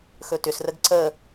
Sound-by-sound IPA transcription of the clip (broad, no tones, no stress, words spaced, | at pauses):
xɵtʏsrəɡ ǀə